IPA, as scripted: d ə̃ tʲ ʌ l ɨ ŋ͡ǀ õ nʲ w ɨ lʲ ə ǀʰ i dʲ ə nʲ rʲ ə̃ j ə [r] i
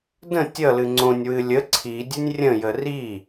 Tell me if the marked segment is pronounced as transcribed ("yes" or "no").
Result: yes